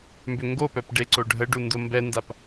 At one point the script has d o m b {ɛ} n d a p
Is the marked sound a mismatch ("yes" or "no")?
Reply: no